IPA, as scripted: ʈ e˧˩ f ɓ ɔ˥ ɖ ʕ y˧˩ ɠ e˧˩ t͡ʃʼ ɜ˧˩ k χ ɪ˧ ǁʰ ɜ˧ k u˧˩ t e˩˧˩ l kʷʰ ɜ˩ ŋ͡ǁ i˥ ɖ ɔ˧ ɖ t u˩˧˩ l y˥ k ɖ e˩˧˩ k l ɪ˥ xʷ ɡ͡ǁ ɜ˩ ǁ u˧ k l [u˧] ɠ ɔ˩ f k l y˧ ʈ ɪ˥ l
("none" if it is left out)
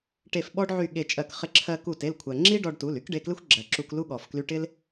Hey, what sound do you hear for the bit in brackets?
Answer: u˥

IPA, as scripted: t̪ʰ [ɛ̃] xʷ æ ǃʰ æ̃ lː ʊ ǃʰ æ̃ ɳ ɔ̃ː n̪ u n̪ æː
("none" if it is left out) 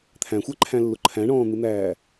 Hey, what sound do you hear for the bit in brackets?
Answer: æ̃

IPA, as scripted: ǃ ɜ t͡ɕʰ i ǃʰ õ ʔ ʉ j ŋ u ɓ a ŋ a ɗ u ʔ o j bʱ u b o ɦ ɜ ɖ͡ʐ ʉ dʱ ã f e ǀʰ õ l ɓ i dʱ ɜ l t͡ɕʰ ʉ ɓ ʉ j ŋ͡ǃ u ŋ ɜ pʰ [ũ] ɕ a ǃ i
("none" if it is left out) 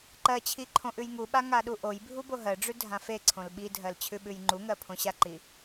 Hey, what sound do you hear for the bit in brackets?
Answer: õ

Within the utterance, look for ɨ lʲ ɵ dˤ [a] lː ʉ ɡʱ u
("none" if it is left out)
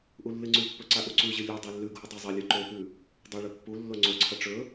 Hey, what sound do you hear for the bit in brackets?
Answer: a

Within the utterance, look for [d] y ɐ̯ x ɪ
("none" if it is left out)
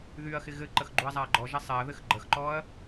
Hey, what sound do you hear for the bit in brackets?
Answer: ð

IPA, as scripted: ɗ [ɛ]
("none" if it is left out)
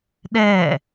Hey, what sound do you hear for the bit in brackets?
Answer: ɛ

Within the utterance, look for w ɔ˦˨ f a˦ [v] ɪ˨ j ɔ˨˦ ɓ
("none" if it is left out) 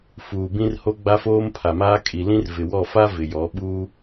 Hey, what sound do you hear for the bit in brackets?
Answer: v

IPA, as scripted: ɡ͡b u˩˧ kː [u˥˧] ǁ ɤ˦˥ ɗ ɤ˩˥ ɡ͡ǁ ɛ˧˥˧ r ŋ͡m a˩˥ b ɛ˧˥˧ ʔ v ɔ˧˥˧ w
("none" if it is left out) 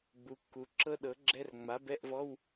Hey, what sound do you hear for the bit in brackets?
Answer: u˩˧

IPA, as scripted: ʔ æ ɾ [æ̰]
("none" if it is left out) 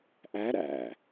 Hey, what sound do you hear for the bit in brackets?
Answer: æ̰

